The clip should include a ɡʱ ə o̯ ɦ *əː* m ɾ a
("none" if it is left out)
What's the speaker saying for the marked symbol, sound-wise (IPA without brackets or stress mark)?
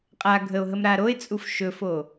ə